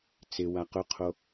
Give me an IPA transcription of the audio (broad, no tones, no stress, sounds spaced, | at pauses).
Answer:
t͡s ɪ w a q ʊ qʰ o